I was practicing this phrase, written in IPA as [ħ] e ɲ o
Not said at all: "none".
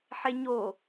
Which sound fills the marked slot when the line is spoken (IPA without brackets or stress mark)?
ħ